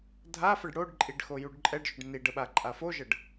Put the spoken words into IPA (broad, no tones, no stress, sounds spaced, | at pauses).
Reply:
dʱ a f ə ɖ ɽ o ɖ ǃʼ i ɖ x o j u ɖ ǃʼ ɛ ɖ ʒ ʏ ɖ n i ɖ ə ɓ a ǃʼ a f o ʒ ə ɖ